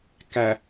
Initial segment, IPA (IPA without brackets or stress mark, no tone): k